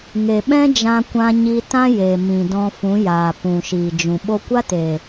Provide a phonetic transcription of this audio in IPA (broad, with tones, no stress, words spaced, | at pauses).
ŋe˨ɓɛ̃˦d͡ʒã˧kʷã˧ ɲi˧tã˦ je˨mĩ˨dɔ̃˧ fũ˨˦jaː˨ pũ˨ʃiː˨ d͡ʒũ˨ ɓo˧kʷa˦te˨